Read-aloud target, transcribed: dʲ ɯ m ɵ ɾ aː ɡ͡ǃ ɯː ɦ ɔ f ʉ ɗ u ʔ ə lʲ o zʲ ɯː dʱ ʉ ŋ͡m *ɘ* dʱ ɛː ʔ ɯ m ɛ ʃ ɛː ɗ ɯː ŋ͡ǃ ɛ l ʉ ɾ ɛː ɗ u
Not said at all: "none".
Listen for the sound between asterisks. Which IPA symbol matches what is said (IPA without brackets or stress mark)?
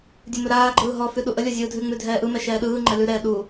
ʉ